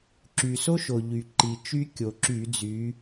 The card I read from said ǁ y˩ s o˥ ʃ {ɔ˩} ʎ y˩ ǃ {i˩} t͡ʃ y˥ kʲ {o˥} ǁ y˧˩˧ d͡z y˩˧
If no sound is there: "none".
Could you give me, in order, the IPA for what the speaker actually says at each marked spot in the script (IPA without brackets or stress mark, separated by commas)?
o˩, i˩, o˩